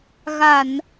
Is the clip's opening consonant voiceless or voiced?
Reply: voiced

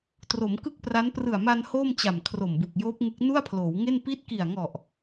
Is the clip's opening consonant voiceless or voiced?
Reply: voiceless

